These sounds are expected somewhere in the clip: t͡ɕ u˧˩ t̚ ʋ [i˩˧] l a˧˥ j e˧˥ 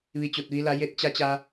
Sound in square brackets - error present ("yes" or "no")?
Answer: yes